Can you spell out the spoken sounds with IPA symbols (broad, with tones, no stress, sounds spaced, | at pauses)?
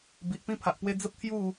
b i˨ ʔ p ĩ˥˧ pʰ a˨ ʔ p w e˦ d͡z ə˦ p̚ t̪ʰ j u˥˧